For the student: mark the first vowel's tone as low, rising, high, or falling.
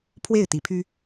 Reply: falling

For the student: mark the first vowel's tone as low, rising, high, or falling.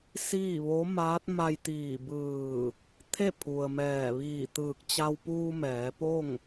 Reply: falling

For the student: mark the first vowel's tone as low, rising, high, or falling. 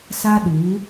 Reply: high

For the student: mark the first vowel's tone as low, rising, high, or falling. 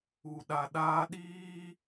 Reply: low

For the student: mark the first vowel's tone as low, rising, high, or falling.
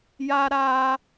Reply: high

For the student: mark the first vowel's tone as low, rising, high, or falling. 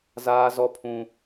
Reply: high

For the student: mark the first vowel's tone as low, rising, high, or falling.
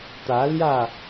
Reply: rising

